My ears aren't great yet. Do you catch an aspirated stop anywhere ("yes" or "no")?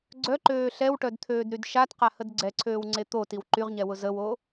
yes